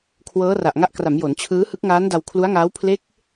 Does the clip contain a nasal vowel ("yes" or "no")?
no